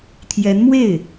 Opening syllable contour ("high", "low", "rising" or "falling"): rising